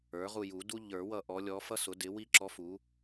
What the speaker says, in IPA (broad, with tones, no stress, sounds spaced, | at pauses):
ə˞˩˥ ʁ u˦˨ j u˨˩˦ d u˥ ʎ ə˞˨˩˦ w ʌ˦˨ ʔ ɔ˧˥ lʲ ɔ˧˥ f ʌ˥ s ʊ˩˥ d ɪ˩˥ w i˥ ǁ ɔ˧˥ f u˩˥